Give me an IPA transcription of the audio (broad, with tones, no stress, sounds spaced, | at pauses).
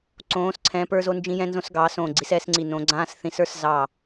ǀ õː˨˦ s ǀʰ ɛ̃˨˦ p ə˞˦ z o˦ n d͡ʒ ĩ˦ j ɛ̃˦ n z õ˦ s ɡ ɑː˨˦ s õː˧˩ ɡ͡ǀ i˨˦ s ɛː˦ s ŋ͡ǀ i˧˩ n õ˨˦ ɡ͡ǀ ãː˦ s θ ĩ˨˦ s ə˞˦ s z ɑ˧˩